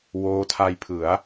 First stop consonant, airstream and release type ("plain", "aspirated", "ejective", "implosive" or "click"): aspirated